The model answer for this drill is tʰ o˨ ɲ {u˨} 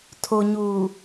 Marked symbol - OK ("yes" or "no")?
no